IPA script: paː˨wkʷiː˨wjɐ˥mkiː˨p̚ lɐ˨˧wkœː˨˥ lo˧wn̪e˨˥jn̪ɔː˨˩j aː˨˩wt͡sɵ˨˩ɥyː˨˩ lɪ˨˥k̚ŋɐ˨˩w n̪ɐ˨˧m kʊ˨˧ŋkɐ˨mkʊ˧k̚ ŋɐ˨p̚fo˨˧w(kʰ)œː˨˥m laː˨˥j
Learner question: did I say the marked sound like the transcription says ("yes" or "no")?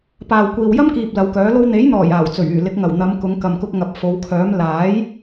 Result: yes